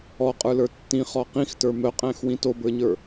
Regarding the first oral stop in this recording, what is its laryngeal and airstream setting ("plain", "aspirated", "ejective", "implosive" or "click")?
ejective